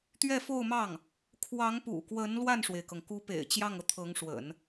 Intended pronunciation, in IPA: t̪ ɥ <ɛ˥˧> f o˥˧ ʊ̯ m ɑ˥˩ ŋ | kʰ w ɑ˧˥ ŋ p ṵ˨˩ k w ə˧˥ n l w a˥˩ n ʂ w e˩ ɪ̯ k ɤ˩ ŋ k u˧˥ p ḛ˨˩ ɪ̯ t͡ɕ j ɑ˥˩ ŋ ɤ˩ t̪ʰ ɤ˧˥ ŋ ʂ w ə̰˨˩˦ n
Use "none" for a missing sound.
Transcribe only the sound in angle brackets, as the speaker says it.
ɛ˥˧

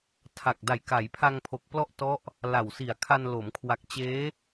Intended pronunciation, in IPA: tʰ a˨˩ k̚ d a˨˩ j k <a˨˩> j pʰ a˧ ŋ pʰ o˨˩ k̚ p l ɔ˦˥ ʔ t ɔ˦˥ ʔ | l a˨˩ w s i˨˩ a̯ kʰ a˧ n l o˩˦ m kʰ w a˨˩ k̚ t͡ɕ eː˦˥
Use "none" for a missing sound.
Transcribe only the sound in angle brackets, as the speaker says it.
a˩˦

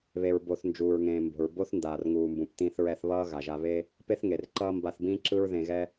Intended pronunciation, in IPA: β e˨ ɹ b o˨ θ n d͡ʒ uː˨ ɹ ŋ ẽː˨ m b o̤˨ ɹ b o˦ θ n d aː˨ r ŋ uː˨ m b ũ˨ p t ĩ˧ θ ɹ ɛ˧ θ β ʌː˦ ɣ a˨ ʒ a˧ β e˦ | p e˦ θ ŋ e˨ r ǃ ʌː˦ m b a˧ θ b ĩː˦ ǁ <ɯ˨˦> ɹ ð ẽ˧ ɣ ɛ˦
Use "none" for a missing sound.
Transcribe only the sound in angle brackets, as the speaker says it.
ɯ˦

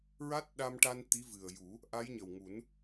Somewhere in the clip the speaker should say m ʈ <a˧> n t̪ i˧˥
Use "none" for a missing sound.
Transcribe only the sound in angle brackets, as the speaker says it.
a˧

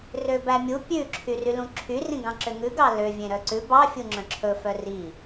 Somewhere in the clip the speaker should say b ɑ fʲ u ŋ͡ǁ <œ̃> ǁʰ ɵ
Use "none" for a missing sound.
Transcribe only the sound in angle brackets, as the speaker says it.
œ̃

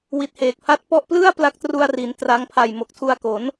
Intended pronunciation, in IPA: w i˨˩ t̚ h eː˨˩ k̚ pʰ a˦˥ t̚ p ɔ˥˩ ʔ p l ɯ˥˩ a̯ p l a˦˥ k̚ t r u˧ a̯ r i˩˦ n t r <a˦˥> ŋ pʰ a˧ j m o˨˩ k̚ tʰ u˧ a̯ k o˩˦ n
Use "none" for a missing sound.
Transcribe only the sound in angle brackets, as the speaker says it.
a˦˥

